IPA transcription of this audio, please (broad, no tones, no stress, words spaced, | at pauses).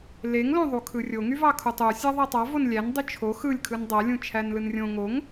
leŋlõðˤu kʰɯrʲoŋyvɑ kʰutˤu sʲæðˤætˤɑ vonlʲæn dˤyt͡ʃʰo xɯlʲkʰɯn dˤælʲũ t͡ʃʰænlɯnrʲõ ŋoŋ